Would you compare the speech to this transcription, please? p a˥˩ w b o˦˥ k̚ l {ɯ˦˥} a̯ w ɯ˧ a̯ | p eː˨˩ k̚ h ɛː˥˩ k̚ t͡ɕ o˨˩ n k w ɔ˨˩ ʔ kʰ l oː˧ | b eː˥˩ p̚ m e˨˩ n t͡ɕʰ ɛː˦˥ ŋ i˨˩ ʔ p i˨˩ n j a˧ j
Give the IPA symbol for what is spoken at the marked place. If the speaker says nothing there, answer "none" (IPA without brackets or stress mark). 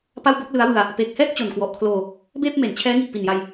ɯ˦˥